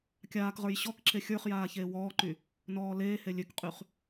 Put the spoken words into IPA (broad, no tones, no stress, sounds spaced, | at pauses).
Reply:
kʲ aː k ʁ ə˞ j ɕ ɔ k ǁ e xʲ ə˞ χ j aː ç eː w ɔː ǃ y | n ɔː l eː h e lʲ ø k qʼ y χ